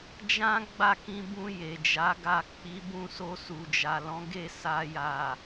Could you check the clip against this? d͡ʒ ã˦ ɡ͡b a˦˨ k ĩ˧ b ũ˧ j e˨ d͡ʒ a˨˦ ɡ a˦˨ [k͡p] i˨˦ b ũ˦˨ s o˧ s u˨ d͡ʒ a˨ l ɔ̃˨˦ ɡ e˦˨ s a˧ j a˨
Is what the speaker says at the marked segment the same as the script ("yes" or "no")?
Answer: yes